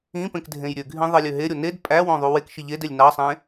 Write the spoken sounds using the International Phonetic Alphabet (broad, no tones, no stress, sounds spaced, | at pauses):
ĩ p ẽ k dʱ ẽ j ɾʲ ø ɡʱ ĩ ðˤ i lʲ ø ɦ e ɾʲ o n e d pʼ æ w õ ðˤ u w e k ʃ i ʎ e d e lʲ n ɑ sˤ ẽ